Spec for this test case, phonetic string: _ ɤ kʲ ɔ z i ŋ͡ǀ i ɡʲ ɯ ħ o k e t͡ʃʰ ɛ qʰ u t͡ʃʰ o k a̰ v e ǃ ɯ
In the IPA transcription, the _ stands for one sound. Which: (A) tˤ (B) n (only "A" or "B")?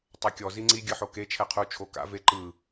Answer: A